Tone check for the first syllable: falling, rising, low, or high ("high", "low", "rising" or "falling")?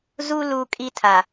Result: high